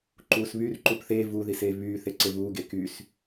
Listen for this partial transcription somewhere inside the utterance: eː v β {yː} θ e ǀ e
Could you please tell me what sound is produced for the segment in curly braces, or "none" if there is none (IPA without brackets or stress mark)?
yː